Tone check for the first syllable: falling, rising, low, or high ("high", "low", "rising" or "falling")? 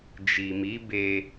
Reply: low